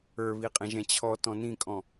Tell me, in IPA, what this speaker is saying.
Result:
ə˞ β i qʼ ɛ̃ ʒ ɛ̃ t͡ɕʰ ɔ t ɔ̃ n ĩ kʼ ɔ̃

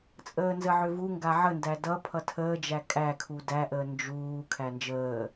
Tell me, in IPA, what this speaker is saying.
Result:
t͡sʼ əː n z ə ʕ ʏ v u ŋ ɡ a ʕ ə n d æ d ʌ pʰ ʌ tʰ əː d͡ʒ æ kʼ æ kʰ u d æ ʔ əː n d͡ʒ uː kʰ æ n d͡ʒ əː

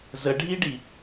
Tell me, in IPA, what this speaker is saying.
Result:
z ə ɖʱ i ɖ i

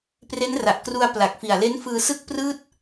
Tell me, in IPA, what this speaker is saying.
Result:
p r e˦˥ n r a˨˩ ʔ k r u˧ a̯ p l a˨˩ k̚ f i˨˩ a̯ l e˦˥ n f ɯː˧ s ɯ˥˩ k̚ p r ɯː˥˩ t̚

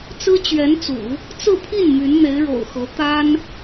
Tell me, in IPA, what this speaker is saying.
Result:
t͡s ɹ̩˥ t͡ɕ ɥ ɛ˧˥ n t͡s ṵ˨˩˦ | t͡s ɹ̩˥˧ pʰ i˥˩ n m y˧˥ n n̪ e˧˥ ɪ̯ ɻ o̰˨˩ ʊ̯ x ɤ˧˥ t̪ a˥ n

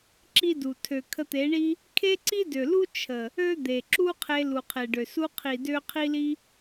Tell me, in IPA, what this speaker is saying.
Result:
ǁ i˦ d u˨ tʰ ø˨ kʰ ə˧ t̪ e˨˦ ɳ i˦ | kʰ e˦ ǀ i˦ d ø˨ l u˦ t͡ʃʰ ə˨ | ø˦ d̪ e˨ ǁ u˦ qʰ e˧ l u˨ qʰ e˨ ɖ ø˨ s u˧ qʰ i˨ d ø˧ qʰ i˦ l i˦

